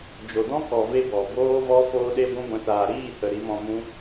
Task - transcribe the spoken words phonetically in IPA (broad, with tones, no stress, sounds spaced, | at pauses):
d͡ʒ o˨ d ɔ̃˦ k ɔ˨ v e˧ b ɔ˨ b oː˦ v ɔ˦ f oː˧ ɗ e˧ ɡʷ ũ˦ ɡʷ ɛ̃˧ s aː˨ ɾ iː˦˨ h ə˨ ɾ i˨˦ m ɔ̃˧ m ũ˦